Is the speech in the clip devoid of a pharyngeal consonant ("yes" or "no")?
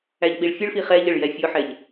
no